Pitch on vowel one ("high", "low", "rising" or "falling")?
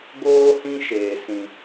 high